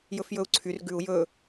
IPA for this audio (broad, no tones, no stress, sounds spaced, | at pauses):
j ɵ f j ɵ u̯ ǀʰ y r ɡ ʉ u̯ j ɵ